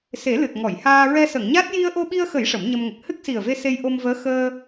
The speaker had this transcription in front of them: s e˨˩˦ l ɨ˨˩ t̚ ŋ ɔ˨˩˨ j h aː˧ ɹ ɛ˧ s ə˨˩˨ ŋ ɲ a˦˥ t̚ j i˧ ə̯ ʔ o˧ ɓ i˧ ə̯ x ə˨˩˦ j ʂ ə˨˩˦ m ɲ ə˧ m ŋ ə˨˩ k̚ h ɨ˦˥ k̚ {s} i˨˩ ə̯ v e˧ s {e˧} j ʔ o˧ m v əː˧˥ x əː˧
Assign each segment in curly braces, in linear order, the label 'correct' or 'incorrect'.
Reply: correct, correct

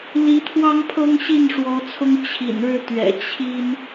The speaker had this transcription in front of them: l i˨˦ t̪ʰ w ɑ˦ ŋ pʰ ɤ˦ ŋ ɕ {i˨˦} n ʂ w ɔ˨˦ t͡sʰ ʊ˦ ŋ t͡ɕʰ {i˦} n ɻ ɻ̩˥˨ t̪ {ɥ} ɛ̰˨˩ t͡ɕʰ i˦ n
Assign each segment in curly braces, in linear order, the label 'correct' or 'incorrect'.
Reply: incorrect: i˥˨, incorrect: ḭ˨˩, correct

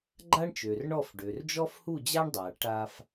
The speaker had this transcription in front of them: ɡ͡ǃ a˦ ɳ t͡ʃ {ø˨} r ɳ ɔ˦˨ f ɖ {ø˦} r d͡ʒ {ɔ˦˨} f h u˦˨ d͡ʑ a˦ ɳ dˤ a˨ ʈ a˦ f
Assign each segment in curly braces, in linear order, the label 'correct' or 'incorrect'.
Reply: correct, incorrect: ø˨, incorrect: ɔ˦

